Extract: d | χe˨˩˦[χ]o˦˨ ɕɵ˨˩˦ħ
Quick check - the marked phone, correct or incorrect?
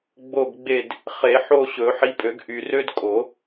incorrect